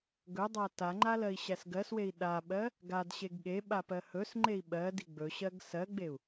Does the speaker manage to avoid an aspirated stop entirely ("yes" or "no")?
yes